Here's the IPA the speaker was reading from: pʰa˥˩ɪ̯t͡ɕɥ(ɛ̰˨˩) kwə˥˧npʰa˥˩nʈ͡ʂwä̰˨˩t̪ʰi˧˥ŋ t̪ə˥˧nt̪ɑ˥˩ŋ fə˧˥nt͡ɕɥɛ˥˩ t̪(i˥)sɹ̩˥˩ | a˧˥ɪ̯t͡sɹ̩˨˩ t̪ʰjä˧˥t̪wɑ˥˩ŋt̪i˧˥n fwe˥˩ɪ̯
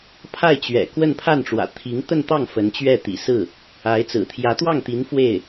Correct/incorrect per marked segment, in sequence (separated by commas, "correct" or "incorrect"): correct, incorrect